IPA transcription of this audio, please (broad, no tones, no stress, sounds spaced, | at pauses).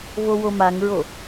v o w o m a ŋ ɹ o